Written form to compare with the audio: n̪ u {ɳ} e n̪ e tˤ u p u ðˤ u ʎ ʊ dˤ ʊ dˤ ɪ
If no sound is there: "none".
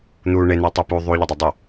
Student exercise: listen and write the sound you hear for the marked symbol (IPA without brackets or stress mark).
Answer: ɳ